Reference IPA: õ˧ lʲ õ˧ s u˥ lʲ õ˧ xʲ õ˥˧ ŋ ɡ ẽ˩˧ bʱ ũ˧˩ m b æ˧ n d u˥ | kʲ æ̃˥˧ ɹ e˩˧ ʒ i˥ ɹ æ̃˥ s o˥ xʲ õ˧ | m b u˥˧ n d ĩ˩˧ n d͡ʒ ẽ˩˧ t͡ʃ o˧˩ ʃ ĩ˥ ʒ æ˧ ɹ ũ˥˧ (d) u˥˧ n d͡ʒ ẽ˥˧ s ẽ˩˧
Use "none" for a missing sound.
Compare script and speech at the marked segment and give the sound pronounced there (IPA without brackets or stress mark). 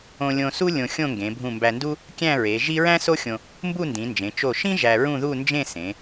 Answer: ð